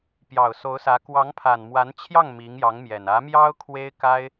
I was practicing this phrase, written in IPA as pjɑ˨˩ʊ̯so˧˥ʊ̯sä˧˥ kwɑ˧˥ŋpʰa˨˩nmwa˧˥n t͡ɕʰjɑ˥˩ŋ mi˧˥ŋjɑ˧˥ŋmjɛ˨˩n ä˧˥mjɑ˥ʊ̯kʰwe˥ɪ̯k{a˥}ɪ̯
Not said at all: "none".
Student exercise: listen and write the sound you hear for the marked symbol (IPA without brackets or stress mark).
a˥